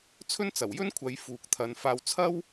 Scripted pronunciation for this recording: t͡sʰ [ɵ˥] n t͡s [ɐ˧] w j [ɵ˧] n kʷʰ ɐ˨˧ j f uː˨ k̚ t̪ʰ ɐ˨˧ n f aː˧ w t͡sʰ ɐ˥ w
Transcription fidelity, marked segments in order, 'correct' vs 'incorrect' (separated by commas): correct, incorrect, incorrect